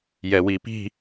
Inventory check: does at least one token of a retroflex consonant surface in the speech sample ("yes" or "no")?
no